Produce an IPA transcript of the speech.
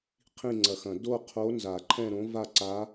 qʰ ĩ˥˧ ŋ͡ǀ ɐ˨˩˦ x ɐ̃˨˩˦ d o˥˧ qʰ o˧˥ n z a˨˩˦ ǃʰ ɛ̃˥˧ ɾ õ˧˥ v a˥˧ ǀ a˧˥

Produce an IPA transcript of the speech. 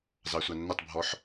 z ɑ sʷ ɑ nː ʊ tˤ bʱ ɔ ħ

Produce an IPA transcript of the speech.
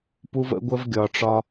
p u˦ v ə̰˦ ɡʷ ə˦ v ɡʲ ɒ˨ ʈ͡ʂ ɒ˦

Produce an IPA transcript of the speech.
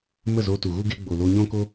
m ə˦˨ z o˧ t u˨ ɣ u˦ ɡ e˧ ɡ͡b o˨ l o˧ ɲ ɔ̃˦ k o˦

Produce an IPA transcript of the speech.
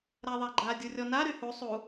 ɾ a ðˤ a ɡ͡ǃ a dʲ u rʲ ɔ n a ɾ y h u sˤ u

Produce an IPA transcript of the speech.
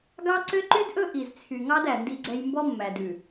ɡ ɑ˦ ǀ ø˦ ǃ y˦ d ʔ ɵ˦ ʔ i˨ z t͡sʰ y˨ ŋ ɑ˦ d æ˨ n d i˦ ɡ͡ǀ ɛ˦ j m b ɔ˦ mː æ˨ d ʉ˨

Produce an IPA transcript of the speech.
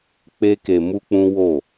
k͡p e˦ k e˧ m u˦ k͡p ũ˦ w o˦˨

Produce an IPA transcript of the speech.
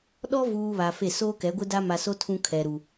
ɗ ɔ˦ v uː˨ β a˨ f e˦˨ s oː˦ k ɛ˨˦ ɡʷ ɪ˦ d a˦ m a˨ s o˦ tʰ ũ˦ kʰ ɛ˨ ɾ u˨

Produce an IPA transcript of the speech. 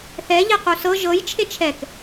θ ɛ ʎ e q u s ɤ ʒ ɤ j t͡ʃʰ e t͡ʃʰ ɛ k

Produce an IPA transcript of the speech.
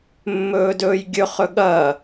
mː ɵː d ɵː j ɡʲ ɵ χ ɵ ɠ ɐ

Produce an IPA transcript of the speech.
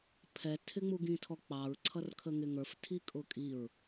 pʰ ɛ tʰ ɪ ŋ͡m u ɡ ĩ tʰ ɔ k͡p ɑ ɹ ǀʰ ʌ r kʰ ə ŋ ɪ ŋ ə˞ f tʰ i kʼ ʊ kʼ i ɹ

